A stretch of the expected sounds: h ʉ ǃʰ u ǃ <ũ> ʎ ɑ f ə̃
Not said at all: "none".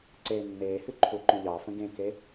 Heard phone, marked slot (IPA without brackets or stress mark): ũ